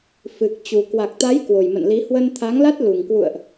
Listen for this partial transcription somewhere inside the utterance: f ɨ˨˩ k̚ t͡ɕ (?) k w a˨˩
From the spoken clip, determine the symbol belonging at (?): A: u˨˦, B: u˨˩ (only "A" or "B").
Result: B